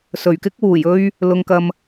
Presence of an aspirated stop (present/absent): absent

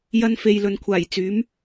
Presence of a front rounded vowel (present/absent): present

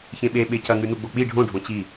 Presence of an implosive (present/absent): present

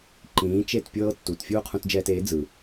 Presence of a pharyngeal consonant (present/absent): absent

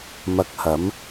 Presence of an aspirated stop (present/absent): absent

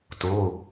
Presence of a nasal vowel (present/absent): absent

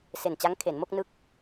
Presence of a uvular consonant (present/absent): absent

